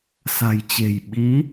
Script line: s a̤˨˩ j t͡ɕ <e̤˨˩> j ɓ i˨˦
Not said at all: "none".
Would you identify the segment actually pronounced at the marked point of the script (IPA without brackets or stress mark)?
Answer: e̤˨˩